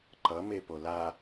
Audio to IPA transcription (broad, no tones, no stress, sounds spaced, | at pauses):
ǃ ʌ m e p o l a